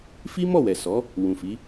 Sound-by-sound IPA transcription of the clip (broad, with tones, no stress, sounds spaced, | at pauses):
f i˦ m ɔ˦˨ w ɛ˨ s ɔ˨˦ | w ũ˨ f i˨˦